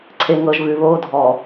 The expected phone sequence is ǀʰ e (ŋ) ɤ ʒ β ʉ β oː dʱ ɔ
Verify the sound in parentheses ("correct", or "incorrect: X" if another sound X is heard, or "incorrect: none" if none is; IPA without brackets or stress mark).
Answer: correct